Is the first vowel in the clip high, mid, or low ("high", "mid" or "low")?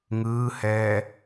high